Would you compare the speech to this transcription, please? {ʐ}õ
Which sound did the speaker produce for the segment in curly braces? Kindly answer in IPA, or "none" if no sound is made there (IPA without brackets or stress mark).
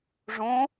ʐ